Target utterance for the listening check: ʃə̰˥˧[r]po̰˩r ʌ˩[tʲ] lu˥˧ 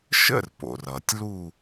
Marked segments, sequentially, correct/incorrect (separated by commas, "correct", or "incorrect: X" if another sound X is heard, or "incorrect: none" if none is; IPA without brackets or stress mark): correct, correct